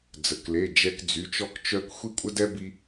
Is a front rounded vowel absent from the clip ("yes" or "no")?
no